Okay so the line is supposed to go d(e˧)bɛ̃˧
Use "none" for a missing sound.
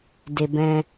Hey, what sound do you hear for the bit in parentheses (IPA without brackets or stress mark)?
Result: e˧